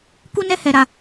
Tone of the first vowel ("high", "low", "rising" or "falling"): high